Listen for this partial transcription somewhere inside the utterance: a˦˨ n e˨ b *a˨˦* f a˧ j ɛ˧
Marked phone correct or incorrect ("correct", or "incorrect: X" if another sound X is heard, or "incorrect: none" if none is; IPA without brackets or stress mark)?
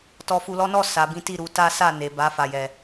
correct